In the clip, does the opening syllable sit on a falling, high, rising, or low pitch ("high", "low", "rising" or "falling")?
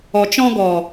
low